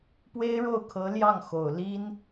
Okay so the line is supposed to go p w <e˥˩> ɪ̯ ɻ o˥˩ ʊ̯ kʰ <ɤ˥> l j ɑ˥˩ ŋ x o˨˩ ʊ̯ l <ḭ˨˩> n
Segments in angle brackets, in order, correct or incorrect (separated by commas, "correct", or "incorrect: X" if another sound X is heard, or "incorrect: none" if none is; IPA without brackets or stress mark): incorrect: e˥, incorrect: ɤ˧˥, incorrect: i˥